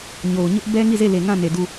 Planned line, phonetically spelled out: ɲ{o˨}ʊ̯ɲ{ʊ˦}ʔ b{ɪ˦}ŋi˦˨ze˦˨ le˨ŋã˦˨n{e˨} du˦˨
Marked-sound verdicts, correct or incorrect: correct, correct, incorrect, correct

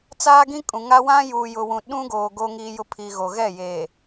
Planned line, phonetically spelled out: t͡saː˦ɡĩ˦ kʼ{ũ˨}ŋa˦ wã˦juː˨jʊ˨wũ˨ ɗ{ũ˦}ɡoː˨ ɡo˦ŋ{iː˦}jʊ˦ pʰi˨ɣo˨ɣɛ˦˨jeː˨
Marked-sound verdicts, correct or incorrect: correct, correct, correct

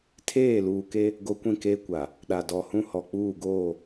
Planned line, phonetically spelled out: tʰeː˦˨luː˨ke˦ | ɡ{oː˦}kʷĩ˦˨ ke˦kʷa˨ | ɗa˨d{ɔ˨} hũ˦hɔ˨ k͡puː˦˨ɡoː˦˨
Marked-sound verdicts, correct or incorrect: incorrect, correct

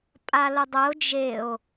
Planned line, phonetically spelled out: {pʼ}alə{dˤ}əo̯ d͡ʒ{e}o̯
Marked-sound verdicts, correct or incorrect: correct, correct, correct

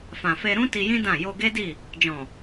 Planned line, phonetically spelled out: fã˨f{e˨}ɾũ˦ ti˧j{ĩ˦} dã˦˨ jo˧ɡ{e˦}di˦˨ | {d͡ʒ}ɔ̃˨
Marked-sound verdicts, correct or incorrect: incorrect, correct, correct, correct

